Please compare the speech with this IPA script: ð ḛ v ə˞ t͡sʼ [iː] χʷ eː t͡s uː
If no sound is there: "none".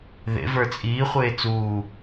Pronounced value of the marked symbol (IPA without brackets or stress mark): iː